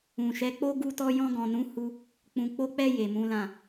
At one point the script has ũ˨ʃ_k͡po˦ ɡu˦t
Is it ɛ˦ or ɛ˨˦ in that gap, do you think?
ɛ˨˦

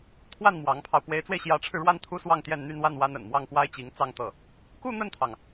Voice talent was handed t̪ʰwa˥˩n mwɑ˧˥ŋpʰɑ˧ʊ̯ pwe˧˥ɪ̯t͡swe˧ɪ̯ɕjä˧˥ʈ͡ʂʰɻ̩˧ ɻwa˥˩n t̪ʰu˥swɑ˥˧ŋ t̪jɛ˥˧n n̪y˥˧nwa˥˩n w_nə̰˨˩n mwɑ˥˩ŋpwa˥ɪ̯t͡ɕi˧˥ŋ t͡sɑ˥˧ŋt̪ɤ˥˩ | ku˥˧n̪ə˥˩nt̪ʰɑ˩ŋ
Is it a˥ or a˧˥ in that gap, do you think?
a˥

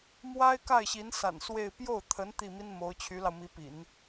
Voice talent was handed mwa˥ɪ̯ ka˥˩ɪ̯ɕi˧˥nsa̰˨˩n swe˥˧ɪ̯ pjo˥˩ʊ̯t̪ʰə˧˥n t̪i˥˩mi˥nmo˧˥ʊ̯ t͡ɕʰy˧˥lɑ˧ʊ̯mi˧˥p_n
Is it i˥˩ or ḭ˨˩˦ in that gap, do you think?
ḭ˨˩˦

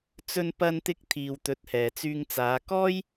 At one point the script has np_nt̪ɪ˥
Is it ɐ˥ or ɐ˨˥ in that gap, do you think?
ɐ˥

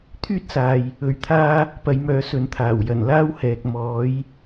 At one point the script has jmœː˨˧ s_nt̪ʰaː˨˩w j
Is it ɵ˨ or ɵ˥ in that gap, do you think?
ɵ˨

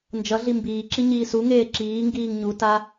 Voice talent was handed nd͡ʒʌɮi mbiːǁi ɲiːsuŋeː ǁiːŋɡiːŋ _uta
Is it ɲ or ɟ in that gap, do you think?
ɲ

